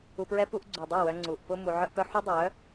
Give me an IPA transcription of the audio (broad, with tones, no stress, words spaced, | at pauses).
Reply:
u˧pɹɛ˦pu˦ʔ ɡ͡ǀu˨dˤœ˦˨wœ˧ ŋ͡ǀu˨ʔ pʊ˧ mu˧ʕœ˦ʔpœ˦ ħu˦dˤœ˨˦